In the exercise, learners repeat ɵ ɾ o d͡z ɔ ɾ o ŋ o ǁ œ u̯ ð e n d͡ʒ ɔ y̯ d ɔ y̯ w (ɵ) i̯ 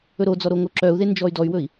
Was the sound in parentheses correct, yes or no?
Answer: yes